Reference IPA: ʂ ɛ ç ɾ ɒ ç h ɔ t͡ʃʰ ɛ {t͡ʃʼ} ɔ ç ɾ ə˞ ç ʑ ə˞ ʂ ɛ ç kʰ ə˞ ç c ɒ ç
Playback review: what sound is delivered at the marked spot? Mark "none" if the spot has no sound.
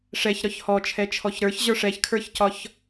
t͡ʃʰ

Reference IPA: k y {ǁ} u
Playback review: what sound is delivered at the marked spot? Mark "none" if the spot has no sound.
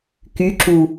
ǁ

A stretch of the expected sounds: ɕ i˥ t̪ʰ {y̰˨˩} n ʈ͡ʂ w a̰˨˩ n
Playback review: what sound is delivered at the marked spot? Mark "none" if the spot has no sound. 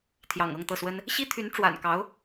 y˧˥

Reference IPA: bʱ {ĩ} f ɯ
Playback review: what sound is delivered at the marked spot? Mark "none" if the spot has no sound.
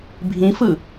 ĩ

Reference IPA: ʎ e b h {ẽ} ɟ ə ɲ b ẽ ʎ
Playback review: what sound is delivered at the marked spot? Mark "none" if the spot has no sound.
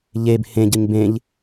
ẽ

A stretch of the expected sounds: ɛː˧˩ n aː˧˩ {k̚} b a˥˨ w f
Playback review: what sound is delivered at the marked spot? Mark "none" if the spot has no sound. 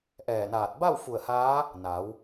t̚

